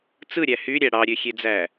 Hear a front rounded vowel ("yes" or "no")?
yes